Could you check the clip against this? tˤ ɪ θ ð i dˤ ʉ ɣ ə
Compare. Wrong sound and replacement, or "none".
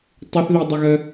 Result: ʉ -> ə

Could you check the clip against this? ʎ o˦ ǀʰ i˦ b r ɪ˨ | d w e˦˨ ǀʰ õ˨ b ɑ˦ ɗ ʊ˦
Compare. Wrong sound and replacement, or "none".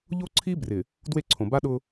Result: ɑ˦ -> a˦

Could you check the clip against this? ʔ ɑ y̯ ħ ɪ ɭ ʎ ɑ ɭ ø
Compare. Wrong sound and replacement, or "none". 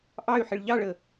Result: ø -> ə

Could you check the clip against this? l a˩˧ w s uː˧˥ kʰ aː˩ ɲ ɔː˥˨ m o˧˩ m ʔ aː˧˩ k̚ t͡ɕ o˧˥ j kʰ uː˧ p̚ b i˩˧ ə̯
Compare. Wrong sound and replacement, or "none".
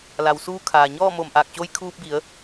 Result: none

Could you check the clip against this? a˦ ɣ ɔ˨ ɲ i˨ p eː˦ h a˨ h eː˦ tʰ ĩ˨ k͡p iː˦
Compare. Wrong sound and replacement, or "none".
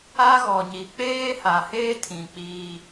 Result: p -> k͡p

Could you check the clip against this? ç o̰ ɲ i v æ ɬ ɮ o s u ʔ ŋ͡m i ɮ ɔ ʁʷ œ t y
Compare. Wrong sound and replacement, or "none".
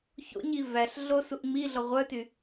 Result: none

